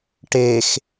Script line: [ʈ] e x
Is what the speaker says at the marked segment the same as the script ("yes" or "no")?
yes